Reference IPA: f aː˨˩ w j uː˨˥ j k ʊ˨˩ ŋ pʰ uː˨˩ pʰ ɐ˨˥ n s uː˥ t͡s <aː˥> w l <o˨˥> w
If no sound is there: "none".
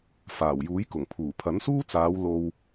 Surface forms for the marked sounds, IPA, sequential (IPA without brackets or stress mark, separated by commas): aː˨˧, o˧